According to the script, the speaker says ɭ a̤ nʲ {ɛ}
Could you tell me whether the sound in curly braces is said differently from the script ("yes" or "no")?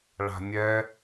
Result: no